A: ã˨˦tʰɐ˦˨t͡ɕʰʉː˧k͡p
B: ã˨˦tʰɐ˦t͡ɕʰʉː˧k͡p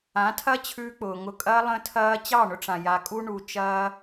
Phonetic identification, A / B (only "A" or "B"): B